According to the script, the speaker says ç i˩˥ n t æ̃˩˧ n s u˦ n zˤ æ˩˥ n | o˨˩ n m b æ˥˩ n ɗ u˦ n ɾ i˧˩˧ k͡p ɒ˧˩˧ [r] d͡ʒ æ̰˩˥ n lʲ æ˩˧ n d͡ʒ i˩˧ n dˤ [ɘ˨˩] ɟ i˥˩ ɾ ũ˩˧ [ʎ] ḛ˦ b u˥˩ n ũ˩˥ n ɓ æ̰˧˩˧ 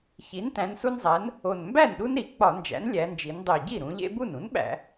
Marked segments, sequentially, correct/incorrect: incorrect, incorrect, correct

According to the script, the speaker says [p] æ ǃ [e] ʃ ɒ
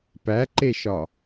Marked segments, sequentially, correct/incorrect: correct, correct

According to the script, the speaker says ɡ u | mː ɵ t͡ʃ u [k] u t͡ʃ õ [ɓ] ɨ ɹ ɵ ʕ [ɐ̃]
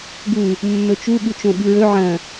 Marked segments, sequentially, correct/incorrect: incorrect, correct, correct

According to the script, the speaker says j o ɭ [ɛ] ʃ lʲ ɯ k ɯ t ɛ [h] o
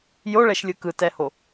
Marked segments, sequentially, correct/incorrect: correct, correct

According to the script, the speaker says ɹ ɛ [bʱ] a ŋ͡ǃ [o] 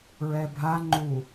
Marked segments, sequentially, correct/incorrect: correct, incorrect

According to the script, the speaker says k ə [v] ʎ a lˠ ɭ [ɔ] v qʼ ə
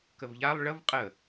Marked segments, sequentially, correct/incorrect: correct, incorrect

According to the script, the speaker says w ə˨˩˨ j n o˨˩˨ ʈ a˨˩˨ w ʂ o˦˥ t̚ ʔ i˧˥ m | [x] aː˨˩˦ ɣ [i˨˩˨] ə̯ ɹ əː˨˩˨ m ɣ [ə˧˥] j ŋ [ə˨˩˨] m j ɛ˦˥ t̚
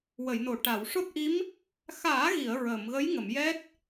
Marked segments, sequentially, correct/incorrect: correct, correct, correct, correct

